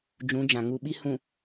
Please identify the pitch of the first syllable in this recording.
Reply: rising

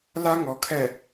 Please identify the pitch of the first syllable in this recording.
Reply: high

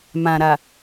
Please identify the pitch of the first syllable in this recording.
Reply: low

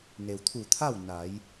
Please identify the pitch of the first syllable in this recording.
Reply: low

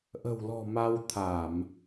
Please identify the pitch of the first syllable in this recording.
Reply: low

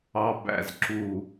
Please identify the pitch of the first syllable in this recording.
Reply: low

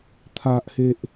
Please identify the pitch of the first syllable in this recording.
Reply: low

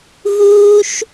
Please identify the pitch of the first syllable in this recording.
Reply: high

